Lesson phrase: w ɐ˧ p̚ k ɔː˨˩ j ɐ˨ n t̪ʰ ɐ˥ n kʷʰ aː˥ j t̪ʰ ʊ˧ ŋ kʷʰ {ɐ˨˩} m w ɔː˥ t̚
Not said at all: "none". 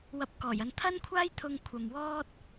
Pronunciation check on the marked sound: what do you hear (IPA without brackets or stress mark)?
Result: ɐ˨